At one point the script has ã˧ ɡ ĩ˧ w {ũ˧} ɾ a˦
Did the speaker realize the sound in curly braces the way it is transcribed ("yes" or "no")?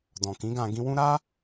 no